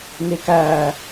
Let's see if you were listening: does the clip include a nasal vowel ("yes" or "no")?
no